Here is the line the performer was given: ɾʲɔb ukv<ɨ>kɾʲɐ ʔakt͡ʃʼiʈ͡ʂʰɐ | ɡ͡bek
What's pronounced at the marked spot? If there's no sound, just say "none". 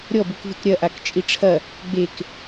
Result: ɨ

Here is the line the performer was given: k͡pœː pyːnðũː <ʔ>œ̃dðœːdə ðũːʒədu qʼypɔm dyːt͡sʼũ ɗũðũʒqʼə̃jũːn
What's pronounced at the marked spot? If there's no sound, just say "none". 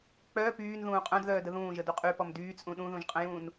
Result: qʼ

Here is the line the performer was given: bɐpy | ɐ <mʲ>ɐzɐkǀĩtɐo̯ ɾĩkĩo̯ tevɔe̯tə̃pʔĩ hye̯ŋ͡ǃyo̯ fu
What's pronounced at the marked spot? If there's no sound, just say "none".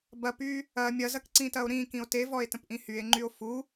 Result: mʲ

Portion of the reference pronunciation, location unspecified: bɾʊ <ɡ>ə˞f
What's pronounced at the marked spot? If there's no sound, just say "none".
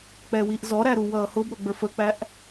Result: ɡ͡b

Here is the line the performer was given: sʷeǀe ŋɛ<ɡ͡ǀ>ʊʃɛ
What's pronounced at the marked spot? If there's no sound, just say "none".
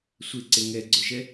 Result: ɡ͡ǀ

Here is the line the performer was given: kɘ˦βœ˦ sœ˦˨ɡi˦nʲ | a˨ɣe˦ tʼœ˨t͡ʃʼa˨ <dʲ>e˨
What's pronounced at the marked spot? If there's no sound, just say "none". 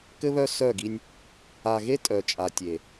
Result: tʲ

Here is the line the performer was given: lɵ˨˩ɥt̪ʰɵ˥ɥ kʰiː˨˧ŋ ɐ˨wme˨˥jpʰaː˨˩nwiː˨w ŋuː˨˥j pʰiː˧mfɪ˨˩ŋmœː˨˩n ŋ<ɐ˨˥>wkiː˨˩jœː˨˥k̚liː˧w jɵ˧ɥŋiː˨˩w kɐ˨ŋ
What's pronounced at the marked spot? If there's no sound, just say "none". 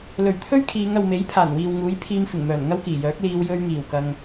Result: ɐ˥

